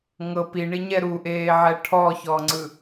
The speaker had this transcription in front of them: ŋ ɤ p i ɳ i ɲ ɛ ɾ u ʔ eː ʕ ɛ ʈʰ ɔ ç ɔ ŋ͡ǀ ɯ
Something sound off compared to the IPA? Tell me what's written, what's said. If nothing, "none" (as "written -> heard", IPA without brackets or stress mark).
none